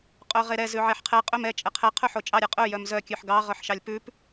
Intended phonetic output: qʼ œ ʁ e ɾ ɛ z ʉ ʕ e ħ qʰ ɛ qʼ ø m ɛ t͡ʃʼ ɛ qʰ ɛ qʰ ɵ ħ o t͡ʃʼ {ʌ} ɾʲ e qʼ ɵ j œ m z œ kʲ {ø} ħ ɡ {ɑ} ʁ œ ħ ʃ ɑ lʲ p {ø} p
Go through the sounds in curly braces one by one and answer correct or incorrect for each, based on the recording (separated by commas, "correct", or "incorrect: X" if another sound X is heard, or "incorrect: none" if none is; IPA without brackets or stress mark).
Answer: incorrect: ɑ, incorrect: ʉ, correct, incorrect: ʉ